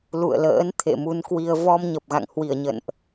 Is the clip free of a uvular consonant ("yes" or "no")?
yes